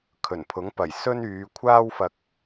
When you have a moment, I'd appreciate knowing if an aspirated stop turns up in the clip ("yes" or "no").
yes